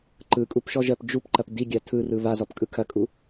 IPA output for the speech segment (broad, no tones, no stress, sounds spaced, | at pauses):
ǃ ɯ kʼ u p ʃ ɔ ʒ ɜ p d͡ʒ u p ǃ ɐ p d i ɡʲ a tʰ ɯ r ɯ β a z ɔ p kʼ ɯ kʰ ɐ kʼ u